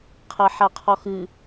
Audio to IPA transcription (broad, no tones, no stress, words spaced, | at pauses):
qʰɐħaqʰɔxɨ